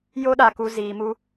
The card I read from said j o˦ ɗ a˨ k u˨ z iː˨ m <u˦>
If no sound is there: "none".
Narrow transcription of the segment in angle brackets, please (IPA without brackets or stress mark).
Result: u˦